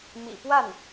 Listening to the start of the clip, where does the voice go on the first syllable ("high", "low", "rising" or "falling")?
low